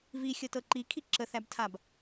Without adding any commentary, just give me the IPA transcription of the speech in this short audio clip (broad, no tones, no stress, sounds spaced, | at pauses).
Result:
v i xʲ ɤ t ɤ ǃ i kʰ i ǁ ə θ æ b tʰ a b